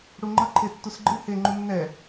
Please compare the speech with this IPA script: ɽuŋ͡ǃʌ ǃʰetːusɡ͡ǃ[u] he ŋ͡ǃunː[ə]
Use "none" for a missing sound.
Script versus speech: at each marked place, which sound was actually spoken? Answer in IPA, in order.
ɯ, ɛ

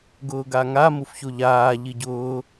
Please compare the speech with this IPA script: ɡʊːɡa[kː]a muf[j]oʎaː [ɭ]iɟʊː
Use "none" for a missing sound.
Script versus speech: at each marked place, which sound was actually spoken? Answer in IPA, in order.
ŋ, ç, ʎ

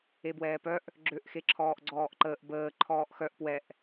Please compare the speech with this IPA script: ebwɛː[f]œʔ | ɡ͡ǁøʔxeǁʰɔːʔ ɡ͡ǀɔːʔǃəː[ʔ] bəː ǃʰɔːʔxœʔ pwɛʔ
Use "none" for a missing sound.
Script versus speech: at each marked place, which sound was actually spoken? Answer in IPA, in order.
p, ʔ

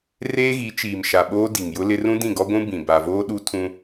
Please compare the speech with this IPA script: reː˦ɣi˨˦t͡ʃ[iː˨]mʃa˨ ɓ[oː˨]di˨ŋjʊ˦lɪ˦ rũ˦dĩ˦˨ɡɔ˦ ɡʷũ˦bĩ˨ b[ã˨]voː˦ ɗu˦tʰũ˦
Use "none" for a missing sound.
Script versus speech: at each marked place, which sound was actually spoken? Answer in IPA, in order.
iː˨, oː˦, a˨

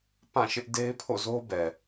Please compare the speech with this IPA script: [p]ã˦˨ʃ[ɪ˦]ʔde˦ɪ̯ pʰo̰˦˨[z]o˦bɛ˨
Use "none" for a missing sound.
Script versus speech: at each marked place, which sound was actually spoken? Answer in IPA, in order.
p, ɪ˦, z

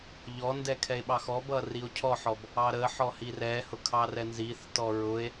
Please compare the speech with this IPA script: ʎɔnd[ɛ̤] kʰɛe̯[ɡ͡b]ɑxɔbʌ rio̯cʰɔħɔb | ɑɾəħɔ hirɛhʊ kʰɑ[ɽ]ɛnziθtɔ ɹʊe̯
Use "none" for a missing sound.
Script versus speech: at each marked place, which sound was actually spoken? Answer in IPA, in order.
ɛ, ɓ, r

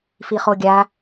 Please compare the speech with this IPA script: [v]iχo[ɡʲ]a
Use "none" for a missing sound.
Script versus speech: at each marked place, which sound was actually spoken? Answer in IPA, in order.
f, ɡʲ

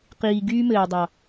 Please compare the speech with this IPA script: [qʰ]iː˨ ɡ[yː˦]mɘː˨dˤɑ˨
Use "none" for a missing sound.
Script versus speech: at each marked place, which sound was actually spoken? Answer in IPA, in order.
q, yː˦

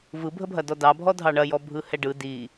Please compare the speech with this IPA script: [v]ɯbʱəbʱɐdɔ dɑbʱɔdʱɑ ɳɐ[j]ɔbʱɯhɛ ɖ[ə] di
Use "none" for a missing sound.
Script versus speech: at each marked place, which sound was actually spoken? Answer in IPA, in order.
v, j, ɯ

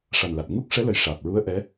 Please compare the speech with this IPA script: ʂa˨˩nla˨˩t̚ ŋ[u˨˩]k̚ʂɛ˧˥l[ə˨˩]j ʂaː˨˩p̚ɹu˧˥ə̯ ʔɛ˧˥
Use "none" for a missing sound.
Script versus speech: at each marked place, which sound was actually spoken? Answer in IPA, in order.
u˦˥, ə˨˩

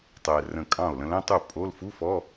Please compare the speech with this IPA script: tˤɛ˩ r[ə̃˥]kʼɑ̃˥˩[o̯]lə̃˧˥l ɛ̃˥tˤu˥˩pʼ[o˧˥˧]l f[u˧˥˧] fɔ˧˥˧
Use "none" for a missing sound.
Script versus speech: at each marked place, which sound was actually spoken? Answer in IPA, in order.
ə̃˧˩, o̯, o˧˥˧, u˧˥˧

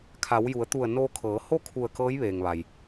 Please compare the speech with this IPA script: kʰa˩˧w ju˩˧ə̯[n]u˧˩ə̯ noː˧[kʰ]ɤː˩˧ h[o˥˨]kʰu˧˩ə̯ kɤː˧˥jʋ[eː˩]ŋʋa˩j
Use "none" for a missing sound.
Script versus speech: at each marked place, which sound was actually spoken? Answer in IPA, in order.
t̪, kʰ, o˥˨, eː˩

